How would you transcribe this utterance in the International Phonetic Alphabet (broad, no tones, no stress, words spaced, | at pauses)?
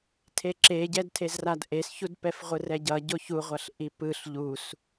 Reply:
tʰeǁeɟɛd tʰezradʔesçud pɛfʁʷɯrɛɟʌ ɟoçuʁʷʌɬ ʔipɯɬ ʎus